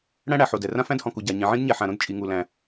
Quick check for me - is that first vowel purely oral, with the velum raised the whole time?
no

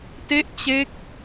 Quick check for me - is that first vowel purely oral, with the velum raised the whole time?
yes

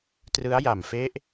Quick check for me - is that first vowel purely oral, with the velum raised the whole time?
yes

